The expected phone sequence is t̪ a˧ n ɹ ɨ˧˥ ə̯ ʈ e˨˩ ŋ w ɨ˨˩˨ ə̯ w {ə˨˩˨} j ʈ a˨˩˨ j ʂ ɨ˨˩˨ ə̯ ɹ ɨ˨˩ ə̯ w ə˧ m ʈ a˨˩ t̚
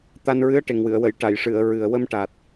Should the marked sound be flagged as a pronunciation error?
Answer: no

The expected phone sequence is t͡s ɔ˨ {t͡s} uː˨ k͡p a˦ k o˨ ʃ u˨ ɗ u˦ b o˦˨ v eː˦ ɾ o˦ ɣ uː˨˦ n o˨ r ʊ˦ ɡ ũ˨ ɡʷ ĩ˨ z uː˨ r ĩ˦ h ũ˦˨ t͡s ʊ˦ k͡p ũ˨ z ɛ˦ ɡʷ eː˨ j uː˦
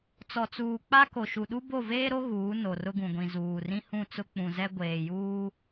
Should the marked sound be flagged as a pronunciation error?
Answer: no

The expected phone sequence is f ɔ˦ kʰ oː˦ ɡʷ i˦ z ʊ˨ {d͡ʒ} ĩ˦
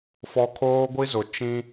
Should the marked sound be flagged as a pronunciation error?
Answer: yes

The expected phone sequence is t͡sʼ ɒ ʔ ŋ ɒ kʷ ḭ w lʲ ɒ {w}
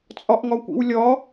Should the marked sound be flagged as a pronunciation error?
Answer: yes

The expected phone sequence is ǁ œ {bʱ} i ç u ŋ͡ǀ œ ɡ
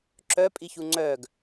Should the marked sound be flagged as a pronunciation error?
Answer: yes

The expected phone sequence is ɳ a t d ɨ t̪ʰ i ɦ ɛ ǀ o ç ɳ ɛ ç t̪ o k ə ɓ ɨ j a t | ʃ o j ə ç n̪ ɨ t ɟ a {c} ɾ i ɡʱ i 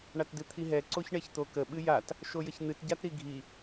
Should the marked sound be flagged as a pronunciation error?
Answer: yes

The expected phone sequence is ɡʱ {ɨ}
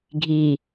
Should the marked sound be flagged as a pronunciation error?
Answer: yes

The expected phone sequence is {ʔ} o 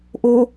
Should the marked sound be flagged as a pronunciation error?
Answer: no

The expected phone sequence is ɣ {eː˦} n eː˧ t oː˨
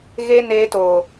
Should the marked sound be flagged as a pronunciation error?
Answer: yes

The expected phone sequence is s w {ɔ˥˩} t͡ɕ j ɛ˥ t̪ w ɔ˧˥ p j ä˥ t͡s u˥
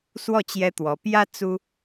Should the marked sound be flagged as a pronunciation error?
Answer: no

